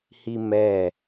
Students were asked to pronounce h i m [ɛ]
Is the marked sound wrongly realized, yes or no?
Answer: no